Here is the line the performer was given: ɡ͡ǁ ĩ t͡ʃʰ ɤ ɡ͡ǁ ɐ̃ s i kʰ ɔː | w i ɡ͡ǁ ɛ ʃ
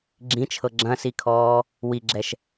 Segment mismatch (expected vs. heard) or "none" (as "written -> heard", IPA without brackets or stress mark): none